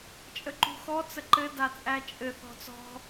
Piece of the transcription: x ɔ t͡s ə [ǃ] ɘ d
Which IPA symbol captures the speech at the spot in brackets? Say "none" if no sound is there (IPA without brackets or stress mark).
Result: ǃ